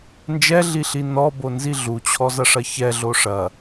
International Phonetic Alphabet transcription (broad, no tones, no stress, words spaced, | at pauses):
nd͡ʒɛɮiɬi nɔbonzi ɮut͡ɕʰɔzɐʂɐ çɛɮo ʂɐ